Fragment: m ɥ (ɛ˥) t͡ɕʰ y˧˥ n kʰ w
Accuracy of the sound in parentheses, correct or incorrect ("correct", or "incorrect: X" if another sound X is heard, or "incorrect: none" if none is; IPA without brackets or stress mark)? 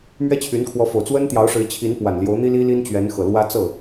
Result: correct